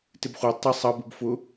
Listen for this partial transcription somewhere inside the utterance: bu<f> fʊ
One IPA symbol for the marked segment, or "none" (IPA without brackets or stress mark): b